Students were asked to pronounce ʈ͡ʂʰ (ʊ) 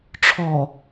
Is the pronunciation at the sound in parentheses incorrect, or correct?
incorrect